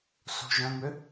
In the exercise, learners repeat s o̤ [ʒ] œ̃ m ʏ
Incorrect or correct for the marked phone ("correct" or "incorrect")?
correct